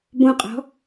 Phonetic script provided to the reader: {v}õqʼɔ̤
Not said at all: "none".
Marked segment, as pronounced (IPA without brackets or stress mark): b